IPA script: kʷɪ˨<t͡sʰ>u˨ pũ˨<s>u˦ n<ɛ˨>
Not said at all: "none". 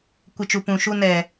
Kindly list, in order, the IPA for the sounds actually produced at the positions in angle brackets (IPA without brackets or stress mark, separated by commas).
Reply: t͡ʃ, ʃ, ɛ˨